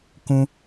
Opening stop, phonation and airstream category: plain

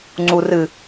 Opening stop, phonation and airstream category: click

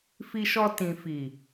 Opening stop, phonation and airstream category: plain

